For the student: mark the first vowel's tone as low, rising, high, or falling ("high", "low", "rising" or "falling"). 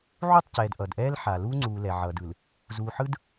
falling